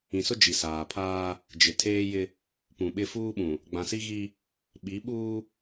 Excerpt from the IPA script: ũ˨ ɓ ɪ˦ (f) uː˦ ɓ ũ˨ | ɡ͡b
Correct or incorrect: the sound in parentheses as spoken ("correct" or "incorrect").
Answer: correct